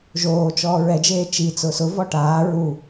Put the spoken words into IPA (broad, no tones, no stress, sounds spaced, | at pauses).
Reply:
ʒ oː t͡ʃ ɔː ɹ ɛ d͡ʒ eː t͡ʃ i t͡s ʊː s ʊ v ɔ ʈ aː ɹ u